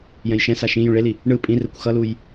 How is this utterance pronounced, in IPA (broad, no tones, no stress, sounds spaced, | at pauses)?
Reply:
j ɛ̃ j ʃ ɛ̃ s a ʃ ĩ j ũ ɭ e l i | ɳ ɯ pʼ ĩ r ɛ kʷ x ʌ l u j